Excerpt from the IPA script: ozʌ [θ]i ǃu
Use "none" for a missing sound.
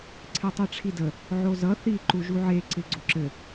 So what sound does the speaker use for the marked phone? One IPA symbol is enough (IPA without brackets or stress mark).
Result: θ